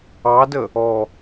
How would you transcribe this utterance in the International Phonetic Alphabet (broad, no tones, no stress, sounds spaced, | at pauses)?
ɑ d ə | ɔ